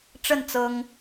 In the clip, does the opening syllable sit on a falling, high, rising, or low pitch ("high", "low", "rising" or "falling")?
falling